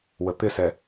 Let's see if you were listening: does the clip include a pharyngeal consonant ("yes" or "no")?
no